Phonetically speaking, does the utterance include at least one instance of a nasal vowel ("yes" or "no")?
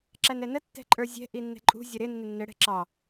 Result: no